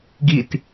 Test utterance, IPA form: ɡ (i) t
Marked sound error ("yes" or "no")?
no